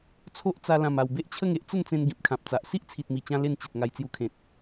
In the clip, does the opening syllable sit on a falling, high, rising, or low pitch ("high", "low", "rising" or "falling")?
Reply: high